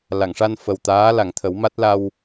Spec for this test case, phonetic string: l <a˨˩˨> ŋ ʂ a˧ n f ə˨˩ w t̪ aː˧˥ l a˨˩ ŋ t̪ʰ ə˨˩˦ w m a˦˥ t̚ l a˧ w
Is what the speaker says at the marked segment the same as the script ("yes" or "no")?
yes